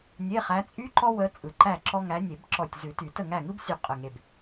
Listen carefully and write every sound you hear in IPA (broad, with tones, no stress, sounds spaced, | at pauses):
nʲ e˧˥˧ χ æ˧˥ t͡sʼ y˥ ǃ ɔ˥ w ə˧˥ t͡sʼ ɯ˧˩ ǃ æ˥˨ ǁ ɔ˥ ŋ æ˧˥ nʲ e˨˩˦ b ǁ ɔ˧˩ tʲ z ʉ˨˩˦ t y˨˩˦ t ə˥˨ ŋ æ˥˨ ŋ ɯ˥ b sʲ ʉ˧˩ qʼ ə˧˩ ŋ e˧˩ b